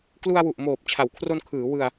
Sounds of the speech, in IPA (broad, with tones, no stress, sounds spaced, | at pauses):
k l u˧ a̯ w u˨˩ ʔ m oː˨˩ p̚ t͡ɕʰ a˩˦ w kʰ r o˧ n kʰ ɯː˩˦ w ɯ˧ a̯